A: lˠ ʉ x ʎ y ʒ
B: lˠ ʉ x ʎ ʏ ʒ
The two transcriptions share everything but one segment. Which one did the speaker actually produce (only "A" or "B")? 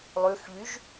A